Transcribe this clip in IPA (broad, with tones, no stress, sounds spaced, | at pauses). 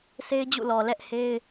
sʰ e˦ ɪ̯ d͡ʑ ṵ˦˨ l ɔ˨ l ɛ˦ ʔ h e˦ ɪ̯